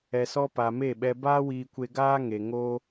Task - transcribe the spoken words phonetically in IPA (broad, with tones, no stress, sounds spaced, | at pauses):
ɛ˨ s ɔ˧ p a˨ m e˦˨ ɓ ɛ˧ b aː˦ w iː˧ kʷ e˧ ɡ aː˦ ŋ e˨ ŋ o˧